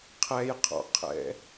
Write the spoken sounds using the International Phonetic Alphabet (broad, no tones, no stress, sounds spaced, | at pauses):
qʰ ɛ j qʰ ɔ̰ qʰ ɛ̰